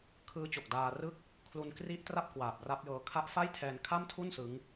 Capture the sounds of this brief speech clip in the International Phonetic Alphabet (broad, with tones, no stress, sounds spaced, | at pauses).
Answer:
kʰ ɯː˦˥ t͡ɕ o˨˩ k̚ d aː˧ r ɯ˥˩ k̚ | kʰ l u˧ n k r i˦˥ ʔ t r a˥˩ p̚ k w aː˨˩ p̚ r a˦˥ p̚ j ɤː˧ kʰ a˦˥ ʔ f a˥˩ j tʰ ɛː˧ n kʰ a˥˩ m tʰ u˥˩ n s ɯ˦˥ ŋ